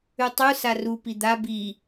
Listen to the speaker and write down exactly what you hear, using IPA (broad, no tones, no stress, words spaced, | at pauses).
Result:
ʉtˤu saru pid̪a bi